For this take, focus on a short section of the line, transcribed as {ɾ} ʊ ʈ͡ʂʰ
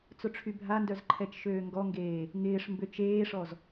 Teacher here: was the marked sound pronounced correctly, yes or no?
no